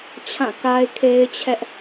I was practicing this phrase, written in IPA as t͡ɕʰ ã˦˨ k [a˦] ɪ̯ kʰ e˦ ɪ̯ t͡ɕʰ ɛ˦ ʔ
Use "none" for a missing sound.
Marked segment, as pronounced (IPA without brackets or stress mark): a˦